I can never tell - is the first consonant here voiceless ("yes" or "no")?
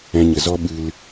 no